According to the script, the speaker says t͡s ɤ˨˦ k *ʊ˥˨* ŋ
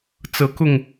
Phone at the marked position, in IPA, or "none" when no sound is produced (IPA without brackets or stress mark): ʊ˥˨